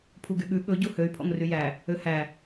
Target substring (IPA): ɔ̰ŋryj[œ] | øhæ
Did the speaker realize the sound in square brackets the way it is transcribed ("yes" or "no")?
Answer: no